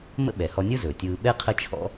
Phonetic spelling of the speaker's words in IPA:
mə̰˥ɓɛ˩hɔ˧nʲɯ˥ zɵː˩tʲɯː˧ ɓɛ˥ qʰə˥t͡ʃʰɔ̰˥

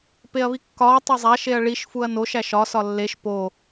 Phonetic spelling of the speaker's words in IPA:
peɐ̯βikːɒː tˤezˤæʃ eɐ̯ɭiʃ fuɐ̯noʃ æʃɒ sɒlːeʃ po

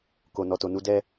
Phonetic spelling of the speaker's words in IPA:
ko˨nɔ˨to˨nu˨˦ dɛ˦

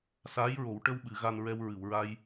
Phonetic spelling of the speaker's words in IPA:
saː˧˥jɹo˨˩˦w ʈə˧wɓɨ˨˩˨ ɣa˧nɹɛ˧w ɹɨ˨˩˨wɹa˧j

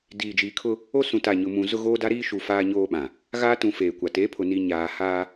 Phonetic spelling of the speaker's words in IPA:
diː˨d͡ʒiː˨kʰʊ˦ | o˦sũ˨ta˨ ɲʊ˨mũ˨ zʊ˦ɣoː˦da˦ɾiː˦ ʃu˨ faː˦ɲoː˦ɓã˨ | ɣaː˦tũ˨ feː˨kʷa˨ te˨˦pʰʊ˨ ni˨ ɲaː˨ haː˦

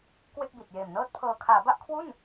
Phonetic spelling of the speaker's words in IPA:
kwe˥˩k̚ bi˨˩t̚ jeː˨˩mnɤː˥˩t̚pʰɤː˧ kʰaː˩˦ba˥˩ʔkʰwu˥˩n

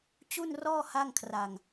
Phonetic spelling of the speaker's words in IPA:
t͡ɕu˥˩nrɔː˥˩ ha˥˩ŋkʰra˧ŋ

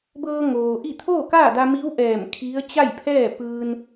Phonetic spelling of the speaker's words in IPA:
bɤː˧ŋoː˩ʔi˥˨ t̪ʰoː˥˨kaː˥˨da˧ mi˧˥wʔɛː˧˩m kʰi˧˥ə̯ t͡ɕa˥˨jpʰɛː˥˨ pɯː˧n

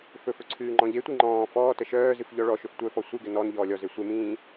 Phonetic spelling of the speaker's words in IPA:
fɵfɵ ǀʰɨːŋ͡ǃɔ̃ʎetʷi ŋ͡ǃɔ̃ː fɔːtə ʃœːzɨf ʎɔɭɔʃɵf tʷœfɔ sʷɨɡɘ nɔn ʎɔːlʲɔze sʷemĩː

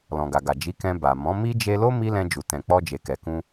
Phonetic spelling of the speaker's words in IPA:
lɔ̃˨ɡa˨ɡa˨ d͡ʒi˨˦ kɛ̃˧ba˨ mɔ̃˨˦mi˦ d͡ʒe˧lo˦ mi˦lɛ̃˧d͡ʒu˨ tɛ̃˨k͡pɔ˧d͡ʒe˨kɛ˨ kũ˧

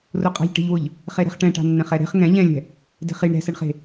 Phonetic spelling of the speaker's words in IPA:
rʊqʼa̤ʎʈe̤ʎwʊʎ | χeɾɛ̤χʈɛ̃ʈa̤ nːɛ̃χɛɾe̤χ ŋɛ̃ ʎɛ̃lʲɛ̤ | de̤χiɳ ɾɛ̤sɛɳχe̤

